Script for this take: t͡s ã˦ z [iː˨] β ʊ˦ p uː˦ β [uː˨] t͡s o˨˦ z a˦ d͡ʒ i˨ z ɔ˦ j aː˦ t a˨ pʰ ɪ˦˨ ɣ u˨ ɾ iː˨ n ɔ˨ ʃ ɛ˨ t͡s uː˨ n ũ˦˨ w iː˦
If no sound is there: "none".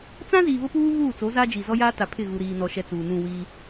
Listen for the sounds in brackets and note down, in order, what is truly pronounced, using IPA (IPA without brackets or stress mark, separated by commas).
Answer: iː˨, uː˦˨